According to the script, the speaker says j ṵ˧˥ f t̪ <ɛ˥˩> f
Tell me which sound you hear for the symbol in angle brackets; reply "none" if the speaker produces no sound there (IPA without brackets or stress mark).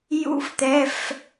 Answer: ɛ˩˧˩